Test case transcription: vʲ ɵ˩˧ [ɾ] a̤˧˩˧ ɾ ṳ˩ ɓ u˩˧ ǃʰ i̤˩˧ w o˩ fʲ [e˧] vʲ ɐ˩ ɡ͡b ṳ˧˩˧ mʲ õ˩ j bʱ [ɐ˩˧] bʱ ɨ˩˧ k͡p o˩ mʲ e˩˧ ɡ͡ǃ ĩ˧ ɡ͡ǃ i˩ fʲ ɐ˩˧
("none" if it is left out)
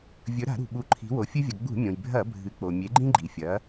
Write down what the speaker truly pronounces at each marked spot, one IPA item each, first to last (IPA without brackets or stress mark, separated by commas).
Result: ɾ, ɨ˧, ɐ˧˩˧